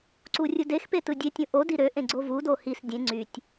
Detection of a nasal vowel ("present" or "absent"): present